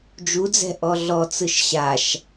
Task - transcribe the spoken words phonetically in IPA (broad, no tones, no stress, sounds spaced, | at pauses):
d͡ʒ u d͡z ɛ̤ ʔ ɔ ɮ ɔ t͡s ɯ ʃ ɕ a ʃ